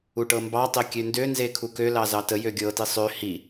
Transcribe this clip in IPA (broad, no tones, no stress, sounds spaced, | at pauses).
u ʈ ɤ m b ɑ tˤ e kʲ ø n d ø n z e kʰ u k ø l ɑ z ɑ t ə j ø ɡʲ ɤ t i sˤ ø h i